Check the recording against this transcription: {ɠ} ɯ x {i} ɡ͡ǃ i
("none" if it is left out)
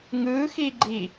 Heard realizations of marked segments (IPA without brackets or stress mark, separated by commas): ŋ, i